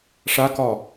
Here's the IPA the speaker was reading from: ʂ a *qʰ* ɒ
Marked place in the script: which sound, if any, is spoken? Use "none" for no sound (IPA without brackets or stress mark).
k